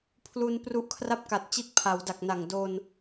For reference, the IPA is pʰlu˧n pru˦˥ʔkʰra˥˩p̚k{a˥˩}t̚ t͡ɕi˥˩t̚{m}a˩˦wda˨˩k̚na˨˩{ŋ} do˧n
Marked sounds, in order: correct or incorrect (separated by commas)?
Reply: incorrect, incorrect, correct